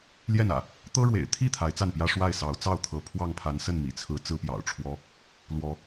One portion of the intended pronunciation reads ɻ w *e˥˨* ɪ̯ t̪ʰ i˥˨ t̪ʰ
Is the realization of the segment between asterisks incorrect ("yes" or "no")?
yes